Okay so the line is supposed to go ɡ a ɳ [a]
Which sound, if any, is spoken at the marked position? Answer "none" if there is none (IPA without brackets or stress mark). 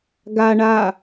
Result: a